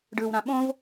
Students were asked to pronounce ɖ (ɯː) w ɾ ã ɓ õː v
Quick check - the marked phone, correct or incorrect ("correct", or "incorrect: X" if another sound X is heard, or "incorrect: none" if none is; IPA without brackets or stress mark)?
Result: correct